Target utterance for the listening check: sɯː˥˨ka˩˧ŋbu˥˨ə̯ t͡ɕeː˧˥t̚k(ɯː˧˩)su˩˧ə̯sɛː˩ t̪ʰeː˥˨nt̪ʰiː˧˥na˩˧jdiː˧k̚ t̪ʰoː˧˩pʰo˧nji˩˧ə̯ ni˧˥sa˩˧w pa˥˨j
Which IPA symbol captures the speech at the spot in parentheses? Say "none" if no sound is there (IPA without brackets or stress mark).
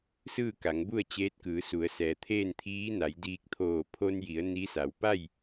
ɯː˩˧